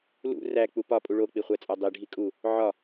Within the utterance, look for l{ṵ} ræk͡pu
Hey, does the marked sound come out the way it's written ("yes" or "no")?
yes